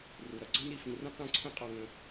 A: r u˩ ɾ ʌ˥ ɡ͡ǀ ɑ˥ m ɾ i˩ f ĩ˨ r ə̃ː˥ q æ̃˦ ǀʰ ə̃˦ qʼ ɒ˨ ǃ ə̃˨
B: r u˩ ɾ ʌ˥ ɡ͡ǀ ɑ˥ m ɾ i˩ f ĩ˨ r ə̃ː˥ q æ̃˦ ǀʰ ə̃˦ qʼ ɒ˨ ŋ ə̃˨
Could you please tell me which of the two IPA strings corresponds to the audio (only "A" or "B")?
B